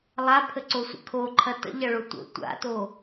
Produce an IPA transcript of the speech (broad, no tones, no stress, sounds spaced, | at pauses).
lˠ a pʰ ə ǀ o sʷ ə̰ kʰ o ǃʰ ɐ t ə̰ ʎ ɐ ɭ o tʷ ə̰ tʷ a̰ t o